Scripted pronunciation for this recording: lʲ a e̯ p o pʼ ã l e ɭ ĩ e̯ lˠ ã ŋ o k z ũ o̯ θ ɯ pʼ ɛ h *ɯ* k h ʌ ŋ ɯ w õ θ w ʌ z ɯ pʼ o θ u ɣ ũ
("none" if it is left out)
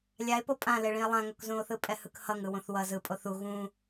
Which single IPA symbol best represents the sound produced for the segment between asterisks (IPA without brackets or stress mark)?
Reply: ɯ